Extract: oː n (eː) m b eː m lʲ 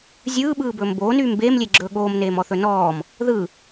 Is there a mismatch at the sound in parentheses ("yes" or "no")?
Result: yes